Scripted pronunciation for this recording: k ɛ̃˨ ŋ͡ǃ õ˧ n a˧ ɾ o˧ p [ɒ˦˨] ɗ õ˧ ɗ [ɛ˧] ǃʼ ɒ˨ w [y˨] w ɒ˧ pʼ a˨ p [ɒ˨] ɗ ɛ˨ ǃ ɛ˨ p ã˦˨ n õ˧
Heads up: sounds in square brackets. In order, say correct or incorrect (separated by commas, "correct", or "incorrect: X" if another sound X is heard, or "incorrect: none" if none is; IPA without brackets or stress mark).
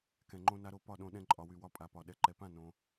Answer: correct, incorrect: ɛ̃˧, correct, correct